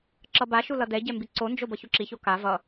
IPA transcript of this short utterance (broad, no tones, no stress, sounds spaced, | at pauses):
ǁ ʌ b a ʃ u l ʌ d ɛ ɟ ɛ m b i ǀ o n d͡ʒ o b ʌ ç u ǁ i ç o k a v ʌ